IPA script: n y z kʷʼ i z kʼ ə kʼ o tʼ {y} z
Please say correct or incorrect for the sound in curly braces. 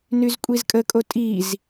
incorrect